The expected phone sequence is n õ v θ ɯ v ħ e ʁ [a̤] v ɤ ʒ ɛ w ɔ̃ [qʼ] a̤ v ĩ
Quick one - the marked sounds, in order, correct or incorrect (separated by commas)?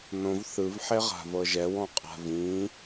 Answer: correct, correct